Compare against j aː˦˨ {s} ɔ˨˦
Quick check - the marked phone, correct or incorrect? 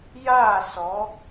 correct